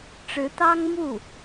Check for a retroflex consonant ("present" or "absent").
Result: present